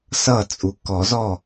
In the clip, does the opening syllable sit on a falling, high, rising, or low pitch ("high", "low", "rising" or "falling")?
falling